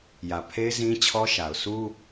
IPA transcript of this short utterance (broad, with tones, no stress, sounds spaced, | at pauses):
j ä˨ pʰ e˦ ɪ̯ z ĩ˦ t͡ɕʰ ɔ˦ ʃ a˨ ʊ̯ s u˦